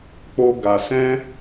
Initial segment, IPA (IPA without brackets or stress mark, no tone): k͡p